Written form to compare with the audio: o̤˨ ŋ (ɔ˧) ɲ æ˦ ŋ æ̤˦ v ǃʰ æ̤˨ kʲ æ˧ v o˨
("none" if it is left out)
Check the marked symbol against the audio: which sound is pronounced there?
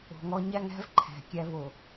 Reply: ɔ˧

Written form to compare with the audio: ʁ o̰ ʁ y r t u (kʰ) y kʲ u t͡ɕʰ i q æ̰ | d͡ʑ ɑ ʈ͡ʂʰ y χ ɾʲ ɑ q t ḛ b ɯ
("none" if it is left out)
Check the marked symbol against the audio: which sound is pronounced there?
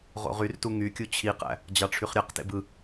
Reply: ŋ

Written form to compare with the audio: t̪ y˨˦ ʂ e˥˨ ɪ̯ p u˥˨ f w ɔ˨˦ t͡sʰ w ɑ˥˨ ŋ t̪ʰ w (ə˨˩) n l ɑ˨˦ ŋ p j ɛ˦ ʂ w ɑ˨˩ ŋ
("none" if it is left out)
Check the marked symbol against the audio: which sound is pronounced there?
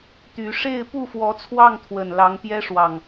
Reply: ə˨˩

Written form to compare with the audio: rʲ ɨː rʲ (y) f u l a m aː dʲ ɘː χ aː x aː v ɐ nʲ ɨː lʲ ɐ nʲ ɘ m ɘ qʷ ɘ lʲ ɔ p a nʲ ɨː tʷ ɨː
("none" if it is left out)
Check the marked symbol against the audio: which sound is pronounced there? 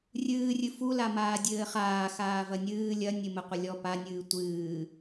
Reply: ɨ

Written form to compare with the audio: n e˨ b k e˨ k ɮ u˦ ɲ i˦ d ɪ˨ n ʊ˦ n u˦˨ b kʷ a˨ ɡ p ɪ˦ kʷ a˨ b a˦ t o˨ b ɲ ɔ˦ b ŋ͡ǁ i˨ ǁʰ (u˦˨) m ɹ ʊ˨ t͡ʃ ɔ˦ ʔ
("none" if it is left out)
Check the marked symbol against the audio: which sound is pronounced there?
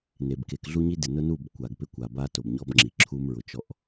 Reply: u˦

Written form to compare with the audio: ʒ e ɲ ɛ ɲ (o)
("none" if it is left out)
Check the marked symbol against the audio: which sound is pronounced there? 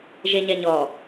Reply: ɔ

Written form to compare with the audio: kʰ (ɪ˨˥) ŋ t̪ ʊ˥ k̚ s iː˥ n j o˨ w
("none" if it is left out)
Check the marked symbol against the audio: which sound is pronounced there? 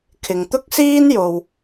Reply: ɪ˨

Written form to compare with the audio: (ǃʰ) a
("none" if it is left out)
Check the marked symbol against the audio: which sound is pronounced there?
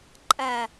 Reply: ǃʼ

